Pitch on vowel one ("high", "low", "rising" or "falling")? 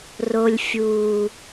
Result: low